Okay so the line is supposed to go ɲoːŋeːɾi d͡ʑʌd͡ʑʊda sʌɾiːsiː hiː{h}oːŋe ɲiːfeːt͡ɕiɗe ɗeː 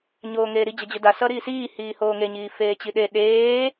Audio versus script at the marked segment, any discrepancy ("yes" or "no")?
no